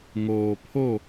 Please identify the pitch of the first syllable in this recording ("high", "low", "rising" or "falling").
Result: low